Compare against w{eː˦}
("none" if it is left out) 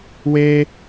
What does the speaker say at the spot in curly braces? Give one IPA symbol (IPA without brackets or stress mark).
eː˦